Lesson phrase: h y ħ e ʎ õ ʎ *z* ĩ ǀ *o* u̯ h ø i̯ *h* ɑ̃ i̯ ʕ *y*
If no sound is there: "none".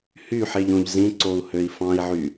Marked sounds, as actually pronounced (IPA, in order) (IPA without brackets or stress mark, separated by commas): z, o, f, y